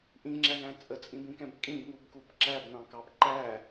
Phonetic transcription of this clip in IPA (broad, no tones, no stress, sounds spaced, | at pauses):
ʔ ĩ ŋ͡ǁ æ ŋ æ̃ t͡sʼ ə t͡sʼ ĩ b ĩ k ɛ̃ b kʼ ĩ b ŋ u b k u b ǁ æ b n ɑ̃ k ɑ b ǃ æ